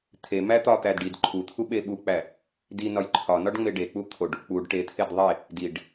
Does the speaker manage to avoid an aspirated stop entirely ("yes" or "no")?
no